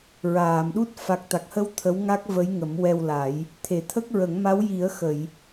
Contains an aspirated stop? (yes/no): yes